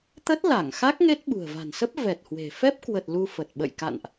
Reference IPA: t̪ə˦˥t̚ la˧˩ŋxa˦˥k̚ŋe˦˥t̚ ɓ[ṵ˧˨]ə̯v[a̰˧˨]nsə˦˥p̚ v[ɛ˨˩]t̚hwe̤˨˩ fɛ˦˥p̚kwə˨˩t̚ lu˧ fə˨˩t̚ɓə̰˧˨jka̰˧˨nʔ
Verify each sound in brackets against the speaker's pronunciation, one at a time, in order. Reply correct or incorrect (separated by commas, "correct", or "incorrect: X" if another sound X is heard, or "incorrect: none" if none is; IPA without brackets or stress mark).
incorrect: ṳ˨˩, incorrect: a̤˨˩, correct